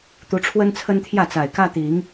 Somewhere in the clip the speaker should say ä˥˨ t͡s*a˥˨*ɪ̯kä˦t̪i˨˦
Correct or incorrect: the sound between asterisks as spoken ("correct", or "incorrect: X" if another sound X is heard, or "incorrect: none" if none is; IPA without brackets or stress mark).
incorrect: a˨˩